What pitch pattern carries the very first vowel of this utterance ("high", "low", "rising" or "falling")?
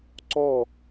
falling